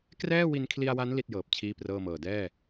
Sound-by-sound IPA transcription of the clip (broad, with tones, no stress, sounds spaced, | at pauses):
k r ɛː˥˩ w i˧ n kʰ l i˧ a̯ w a˦˥ n l i˦˥ t̚ j ɤː˨˩ p̚ t͡ɕʰ iː˥˩ p r ɤː˥˩ m ɤː˨˩ d ɛː˥˩